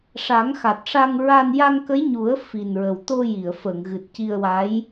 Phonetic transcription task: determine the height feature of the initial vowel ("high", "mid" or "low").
low